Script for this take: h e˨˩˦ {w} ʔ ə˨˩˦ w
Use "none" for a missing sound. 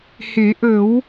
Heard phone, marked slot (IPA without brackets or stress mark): none